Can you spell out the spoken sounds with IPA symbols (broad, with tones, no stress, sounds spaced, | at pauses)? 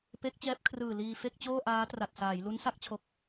p e˦˥ k̚ t͡ɕ ɛː˦˥ p̚ kʰ r ɯː˨˩ l iː˧ f e˥˩ k̚ t͡ɕ oː˥˩ ʔ aː˦˥ t r a˨˩ t̚ s aː˩˦ j l u˦˥ n s a˦˥ k̚ t͡ɕʰ o˨˩ k̚